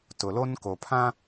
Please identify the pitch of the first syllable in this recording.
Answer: low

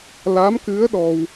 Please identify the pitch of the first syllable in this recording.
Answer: rising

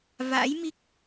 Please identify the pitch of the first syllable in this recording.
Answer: rising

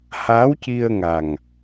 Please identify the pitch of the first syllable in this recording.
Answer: rising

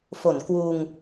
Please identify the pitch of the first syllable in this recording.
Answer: low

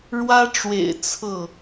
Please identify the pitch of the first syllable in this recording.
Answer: high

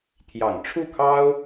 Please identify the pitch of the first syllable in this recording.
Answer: low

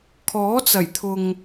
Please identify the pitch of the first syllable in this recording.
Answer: rising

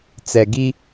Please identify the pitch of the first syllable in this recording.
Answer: low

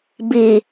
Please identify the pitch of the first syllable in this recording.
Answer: low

